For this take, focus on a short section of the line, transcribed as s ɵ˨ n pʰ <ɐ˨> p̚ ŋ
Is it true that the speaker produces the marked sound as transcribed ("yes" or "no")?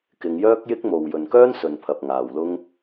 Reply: yes